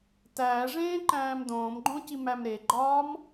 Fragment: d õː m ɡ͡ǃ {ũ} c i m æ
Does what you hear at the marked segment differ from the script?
yes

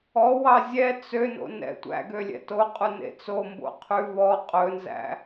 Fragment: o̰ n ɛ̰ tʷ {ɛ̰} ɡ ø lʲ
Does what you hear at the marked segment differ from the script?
yes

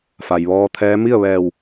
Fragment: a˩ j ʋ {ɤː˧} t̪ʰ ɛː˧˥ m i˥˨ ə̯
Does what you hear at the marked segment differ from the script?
yes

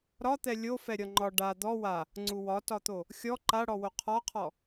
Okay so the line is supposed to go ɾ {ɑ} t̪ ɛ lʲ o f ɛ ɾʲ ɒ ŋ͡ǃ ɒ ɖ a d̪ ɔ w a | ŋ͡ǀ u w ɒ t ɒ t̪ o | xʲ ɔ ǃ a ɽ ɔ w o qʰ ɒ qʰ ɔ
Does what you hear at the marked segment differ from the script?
yes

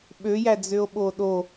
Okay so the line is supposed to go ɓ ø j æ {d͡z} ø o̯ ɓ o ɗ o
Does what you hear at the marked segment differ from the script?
no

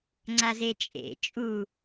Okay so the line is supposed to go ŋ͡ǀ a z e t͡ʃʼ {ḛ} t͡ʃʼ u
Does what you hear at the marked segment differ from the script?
no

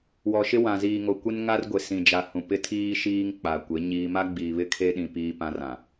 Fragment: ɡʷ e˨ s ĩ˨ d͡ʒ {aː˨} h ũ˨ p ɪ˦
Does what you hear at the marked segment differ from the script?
yes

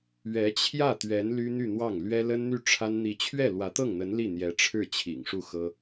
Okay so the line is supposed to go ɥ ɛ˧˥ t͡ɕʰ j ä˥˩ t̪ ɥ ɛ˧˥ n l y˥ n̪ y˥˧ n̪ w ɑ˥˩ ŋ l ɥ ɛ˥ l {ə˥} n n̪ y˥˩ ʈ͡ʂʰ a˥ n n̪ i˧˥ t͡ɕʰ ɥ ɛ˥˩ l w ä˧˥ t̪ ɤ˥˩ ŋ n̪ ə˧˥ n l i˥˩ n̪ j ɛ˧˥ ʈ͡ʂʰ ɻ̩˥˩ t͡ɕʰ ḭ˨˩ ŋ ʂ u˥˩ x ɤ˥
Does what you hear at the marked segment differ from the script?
no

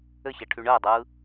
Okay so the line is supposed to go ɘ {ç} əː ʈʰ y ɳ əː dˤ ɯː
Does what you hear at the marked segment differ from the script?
no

